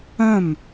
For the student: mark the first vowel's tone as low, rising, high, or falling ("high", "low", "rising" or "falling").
falling